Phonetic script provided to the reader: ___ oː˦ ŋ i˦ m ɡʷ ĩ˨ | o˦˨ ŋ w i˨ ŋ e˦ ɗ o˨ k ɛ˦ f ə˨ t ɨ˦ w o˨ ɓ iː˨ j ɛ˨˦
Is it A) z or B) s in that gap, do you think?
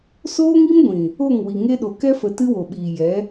B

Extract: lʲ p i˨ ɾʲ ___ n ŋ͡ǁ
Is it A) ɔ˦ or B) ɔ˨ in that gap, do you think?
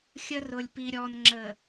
B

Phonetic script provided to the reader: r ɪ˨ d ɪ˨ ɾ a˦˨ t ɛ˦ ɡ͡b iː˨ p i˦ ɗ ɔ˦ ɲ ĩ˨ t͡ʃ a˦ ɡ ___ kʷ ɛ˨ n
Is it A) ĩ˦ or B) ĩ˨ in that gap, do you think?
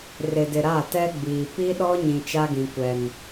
B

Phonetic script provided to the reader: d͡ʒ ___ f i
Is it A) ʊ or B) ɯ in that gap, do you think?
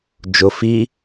A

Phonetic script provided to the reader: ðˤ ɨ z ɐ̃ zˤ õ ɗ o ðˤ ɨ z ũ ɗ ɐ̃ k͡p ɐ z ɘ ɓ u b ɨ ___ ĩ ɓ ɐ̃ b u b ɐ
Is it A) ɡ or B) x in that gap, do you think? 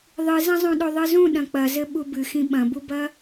B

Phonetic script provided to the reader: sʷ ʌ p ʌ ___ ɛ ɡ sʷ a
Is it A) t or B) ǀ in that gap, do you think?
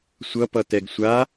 A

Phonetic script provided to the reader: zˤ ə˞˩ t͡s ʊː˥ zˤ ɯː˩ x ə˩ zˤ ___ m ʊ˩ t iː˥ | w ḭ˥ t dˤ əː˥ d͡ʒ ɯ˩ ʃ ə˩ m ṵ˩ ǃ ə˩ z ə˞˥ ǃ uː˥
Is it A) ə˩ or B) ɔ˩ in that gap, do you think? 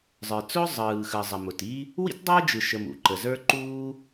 A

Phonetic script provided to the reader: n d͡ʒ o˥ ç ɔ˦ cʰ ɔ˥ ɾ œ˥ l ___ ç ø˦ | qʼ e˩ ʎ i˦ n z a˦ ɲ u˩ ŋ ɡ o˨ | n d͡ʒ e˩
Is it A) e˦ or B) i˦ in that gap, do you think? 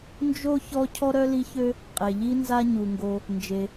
B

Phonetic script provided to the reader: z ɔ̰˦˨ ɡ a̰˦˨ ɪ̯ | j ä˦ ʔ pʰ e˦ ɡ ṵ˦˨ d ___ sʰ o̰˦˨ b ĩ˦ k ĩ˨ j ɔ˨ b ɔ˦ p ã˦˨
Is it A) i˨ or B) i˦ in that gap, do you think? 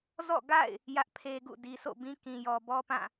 A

